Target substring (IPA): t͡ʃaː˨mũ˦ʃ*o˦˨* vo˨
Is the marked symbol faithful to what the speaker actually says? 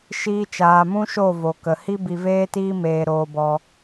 yes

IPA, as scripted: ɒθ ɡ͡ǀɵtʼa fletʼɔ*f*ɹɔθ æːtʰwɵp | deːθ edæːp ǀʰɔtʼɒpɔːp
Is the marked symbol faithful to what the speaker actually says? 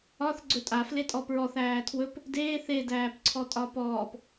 no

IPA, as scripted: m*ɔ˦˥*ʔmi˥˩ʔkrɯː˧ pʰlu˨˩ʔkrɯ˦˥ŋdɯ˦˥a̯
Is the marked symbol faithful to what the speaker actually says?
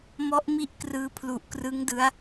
yes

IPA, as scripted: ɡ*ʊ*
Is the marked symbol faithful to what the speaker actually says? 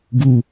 no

